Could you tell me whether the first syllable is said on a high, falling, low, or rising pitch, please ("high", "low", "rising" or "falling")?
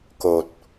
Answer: low